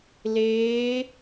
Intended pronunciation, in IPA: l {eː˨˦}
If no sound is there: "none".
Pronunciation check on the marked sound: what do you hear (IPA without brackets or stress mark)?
eː˨˦